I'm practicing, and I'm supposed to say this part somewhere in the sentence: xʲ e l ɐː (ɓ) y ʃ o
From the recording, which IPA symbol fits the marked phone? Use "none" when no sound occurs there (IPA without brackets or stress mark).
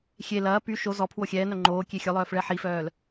p